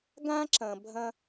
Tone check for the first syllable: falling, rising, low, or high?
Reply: high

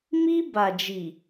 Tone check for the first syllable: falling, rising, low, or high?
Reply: high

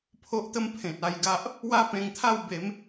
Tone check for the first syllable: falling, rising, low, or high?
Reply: high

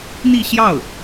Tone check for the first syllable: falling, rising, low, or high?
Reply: falling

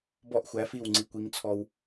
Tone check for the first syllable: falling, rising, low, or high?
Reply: falling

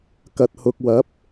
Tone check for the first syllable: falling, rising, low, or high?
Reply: low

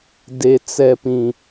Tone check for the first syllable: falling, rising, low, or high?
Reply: low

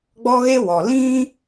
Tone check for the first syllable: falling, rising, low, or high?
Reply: high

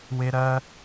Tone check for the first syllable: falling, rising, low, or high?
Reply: high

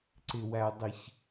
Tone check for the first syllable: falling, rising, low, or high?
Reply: low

